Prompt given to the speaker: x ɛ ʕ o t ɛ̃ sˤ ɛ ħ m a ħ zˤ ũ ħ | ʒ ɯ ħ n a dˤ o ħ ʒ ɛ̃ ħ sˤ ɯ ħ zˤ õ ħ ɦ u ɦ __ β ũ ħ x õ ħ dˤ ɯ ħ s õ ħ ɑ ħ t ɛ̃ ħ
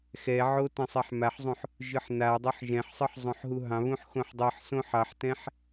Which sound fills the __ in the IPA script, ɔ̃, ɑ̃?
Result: ɑ̃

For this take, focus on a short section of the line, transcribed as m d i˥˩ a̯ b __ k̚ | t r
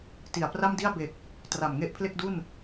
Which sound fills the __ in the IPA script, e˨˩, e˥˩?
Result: e˨˩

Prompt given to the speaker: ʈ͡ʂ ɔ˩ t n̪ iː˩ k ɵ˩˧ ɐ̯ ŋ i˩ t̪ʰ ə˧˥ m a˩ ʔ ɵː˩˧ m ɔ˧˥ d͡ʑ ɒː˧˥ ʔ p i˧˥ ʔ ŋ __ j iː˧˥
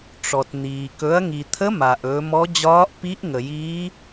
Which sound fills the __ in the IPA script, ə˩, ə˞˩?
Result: ə˩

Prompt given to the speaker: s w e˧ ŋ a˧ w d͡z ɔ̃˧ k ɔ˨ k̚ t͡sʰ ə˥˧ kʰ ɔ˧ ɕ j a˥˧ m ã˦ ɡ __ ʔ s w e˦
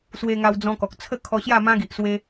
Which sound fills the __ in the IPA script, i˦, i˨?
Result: i˨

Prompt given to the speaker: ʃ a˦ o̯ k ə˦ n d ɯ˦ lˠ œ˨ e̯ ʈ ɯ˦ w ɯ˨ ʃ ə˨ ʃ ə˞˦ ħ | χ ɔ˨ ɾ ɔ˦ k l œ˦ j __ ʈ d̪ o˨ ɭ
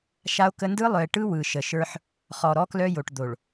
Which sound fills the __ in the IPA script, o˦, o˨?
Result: o˨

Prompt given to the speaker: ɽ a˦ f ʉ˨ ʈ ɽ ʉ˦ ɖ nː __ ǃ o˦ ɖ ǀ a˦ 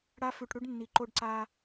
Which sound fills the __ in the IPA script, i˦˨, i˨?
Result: i˨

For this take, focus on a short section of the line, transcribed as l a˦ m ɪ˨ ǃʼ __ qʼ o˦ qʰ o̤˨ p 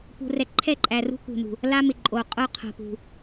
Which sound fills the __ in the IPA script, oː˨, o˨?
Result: o˨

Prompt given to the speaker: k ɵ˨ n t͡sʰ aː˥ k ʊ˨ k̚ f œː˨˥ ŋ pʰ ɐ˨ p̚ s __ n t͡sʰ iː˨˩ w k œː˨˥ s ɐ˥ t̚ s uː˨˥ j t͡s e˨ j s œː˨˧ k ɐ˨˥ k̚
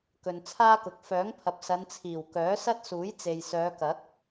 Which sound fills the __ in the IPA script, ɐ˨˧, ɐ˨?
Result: ɐ˨˧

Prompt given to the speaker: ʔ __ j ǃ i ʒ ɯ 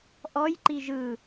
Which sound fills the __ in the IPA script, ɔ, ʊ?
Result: ɔ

